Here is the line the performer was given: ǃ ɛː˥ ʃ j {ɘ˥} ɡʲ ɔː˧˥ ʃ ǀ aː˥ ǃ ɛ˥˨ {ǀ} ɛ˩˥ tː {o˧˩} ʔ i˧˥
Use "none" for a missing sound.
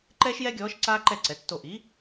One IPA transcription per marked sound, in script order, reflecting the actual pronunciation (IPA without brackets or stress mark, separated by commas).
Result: ɛ˥, ǀ, o˧˩